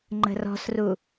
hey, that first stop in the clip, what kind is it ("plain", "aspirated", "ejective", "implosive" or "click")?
click